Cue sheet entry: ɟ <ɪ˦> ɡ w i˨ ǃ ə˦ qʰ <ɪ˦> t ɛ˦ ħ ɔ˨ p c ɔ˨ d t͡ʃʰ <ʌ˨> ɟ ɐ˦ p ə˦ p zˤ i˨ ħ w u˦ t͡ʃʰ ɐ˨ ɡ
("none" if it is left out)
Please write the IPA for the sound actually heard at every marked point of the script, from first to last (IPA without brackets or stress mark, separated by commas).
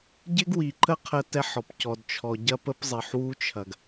ɪ˦, ə˦, ɔ˨